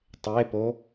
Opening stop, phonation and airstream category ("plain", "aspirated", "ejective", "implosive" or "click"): plain